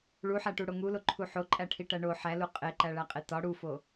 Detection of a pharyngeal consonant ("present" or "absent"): present